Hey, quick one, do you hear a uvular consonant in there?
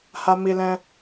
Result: no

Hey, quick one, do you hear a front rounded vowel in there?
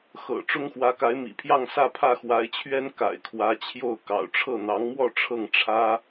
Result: no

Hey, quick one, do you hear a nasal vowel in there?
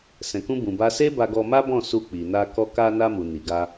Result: yes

